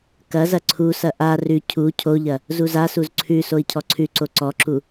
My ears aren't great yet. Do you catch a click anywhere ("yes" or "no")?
yes